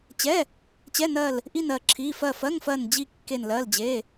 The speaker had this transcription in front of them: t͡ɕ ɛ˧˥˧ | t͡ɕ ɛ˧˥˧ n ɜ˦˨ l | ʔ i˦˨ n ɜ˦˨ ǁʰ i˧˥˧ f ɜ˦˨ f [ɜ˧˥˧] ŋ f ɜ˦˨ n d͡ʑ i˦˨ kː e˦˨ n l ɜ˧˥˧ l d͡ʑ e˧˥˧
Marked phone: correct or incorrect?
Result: correct